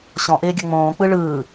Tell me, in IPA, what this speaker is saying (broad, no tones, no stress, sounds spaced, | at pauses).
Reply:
ɕ ɔ̃ ʔ ɪː ɡʲ ʌ ŋ͡m õː k͡p ɯ ɭ ɯː